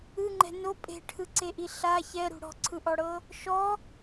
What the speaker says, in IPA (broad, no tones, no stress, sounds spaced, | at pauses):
ɯ ŋ͡ǃ ɛ̤ n o pʼ e̤ ʈʰ ɯ ǀ e ʔ i ɬ a ç ɛ ɾ ṳ ɽ ɔ̤ ǀʰ ɯ ʔ ɔ ɽ ɤ | ʃ ɔ